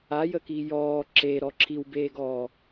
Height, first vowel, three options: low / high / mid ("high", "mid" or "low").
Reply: low